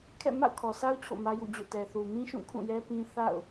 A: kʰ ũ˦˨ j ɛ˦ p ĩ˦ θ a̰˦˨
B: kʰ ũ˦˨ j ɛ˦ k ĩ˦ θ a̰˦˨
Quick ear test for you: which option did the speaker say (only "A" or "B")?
A